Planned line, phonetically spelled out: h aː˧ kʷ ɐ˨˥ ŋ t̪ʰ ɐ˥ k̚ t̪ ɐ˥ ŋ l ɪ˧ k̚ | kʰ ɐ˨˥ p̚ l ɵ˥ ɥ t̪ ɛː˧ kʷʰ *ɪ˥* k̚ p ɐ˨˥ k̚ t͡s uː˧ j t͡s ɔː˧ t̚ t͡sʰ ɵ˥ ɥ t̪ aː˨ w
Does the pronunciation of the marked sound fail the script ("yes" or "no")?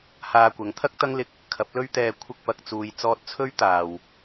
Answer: no